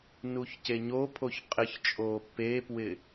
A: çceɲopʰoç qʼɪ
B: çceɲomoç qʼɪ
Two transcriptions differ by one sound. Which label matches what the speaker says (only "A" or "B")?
A